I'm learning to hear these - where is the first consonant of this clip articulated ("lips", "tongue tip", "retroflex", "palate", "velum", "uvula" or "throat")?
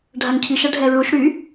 retroflex